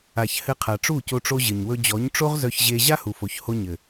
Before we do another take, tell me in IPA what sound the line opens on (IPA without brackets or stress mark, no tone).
a